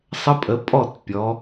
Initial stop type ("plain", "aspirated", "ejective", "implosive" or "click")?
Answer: ejective